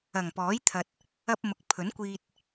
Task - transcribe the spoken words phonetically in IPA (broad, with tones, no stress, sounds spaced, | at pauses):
ɐ˨˩ ŋ p ɔː˨˥ j t̪ʰ ɐ˨ t̚ | ɐ˧ p̚ m ʊ˨ k̚ pʰ ɵ˨˥ n kʷ iː˧ t̚